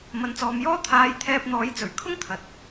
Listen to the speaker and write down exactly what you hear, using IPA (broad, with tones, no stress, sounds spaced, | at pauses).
m ɐ˨ n t͡s ɔː˨ m j ɔː˥ t̪ʰ aː˨˧ j t̪ʰ ɛː˧ p̚ n̪ ɔː˨˥ j t͡s ɵ˨˩ ɥ kʰ ʊ˥ ŋ t̪ʰ ɐ˨ t̚